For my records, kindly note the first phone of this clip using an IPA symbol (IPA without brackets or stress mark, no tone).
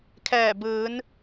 kʰ